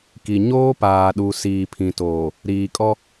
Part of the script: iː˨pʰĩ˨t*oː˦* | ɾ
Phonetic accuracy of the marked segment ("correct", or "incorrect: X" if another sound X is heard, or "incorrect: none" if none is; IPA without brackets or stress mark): incorrect: oː˨